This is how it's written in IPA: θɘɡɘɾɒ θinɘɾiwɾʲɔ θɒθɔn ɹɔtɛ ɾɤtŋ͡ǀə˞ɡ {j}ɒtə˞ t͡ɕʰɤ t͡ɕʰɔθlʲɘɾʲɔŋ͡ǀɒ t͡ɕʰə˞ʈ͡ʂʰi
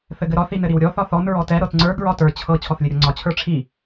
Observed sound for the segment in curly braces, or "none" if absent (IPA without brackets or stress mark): ɹ